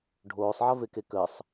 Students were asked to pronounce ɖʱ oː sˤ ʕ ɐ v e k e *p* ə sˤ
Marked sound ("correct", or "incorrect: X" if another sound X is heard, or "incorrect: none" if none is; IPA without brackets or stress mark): incorrect: k